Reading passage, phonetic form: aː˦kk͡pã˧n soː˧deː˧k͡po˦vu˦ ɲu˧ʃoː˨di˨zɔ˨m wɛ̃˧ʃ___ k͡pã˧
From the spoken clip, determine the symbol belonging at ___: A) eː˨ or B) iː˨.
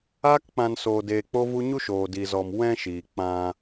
B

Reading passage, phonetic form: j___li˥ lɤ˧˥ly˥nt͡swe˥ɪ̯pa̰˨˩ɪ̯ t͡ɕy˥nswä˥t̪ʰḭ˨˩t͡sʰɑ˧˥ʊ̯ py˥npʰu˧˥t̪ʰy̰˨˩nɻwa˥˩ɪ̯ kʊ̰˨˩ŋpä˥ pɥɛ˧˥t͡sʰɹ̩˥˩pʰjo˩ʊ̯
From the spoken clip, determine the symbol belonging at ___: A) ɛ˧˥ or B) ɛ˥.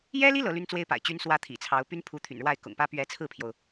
B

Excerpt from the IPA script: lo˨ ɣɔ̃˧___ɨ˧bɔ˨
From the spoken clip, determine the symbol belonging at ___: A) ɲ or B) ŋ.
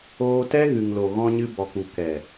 A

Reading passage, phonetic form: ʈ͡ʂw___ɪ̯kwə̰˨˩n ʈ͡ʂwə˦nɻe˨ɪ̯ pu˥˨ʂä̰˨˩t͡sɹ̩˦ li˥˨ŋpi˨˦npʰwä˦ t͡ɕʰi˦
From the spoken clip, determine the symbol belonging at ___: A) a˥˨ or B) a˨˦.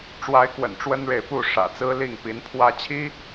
B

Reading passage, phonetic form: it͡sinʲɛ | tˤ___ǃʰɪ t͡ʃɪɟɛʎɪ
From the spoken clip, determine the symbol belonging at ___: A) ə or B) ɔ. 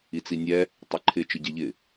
A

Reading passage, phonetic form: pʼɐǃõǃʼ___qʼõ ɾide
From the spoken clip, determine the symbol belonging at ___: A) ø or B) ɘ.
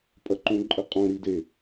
B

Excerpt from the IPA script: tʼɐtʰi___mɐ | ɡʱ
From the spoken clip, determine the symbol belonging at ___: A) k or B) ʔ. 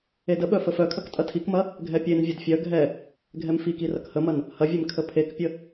A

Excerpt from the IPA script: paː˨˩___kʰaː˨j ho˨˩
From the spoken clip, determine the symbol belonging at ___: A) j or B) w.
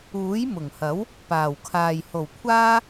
B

